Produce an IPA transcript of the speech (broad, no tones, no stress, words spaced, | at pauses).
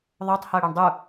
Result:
ðˤotˤhɤ ɽoɳdˤu